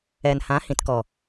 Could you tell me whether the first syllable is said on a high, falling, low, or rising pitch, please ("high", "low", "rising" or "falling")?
low